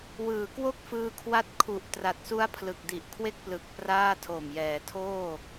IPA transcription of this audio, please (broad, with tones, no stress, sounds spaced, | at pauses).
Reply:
w ɯː˩˦ k w o˥˩ k̚ f ɯː˧ kʰ w a˦˥ t̚ kʰ u˨˩ ʔ t r a˨˩ t̚ s u˦˥ a̯ pʰ l ɯ˨˩ k̚ d i˨˩ ʔ kʰ w e˥˩ k̚ p l ɯ˨˩ k̚ p r aː˥˩ tʰ o˨˩ m j ɛː˩˦ tʰ oː˥˩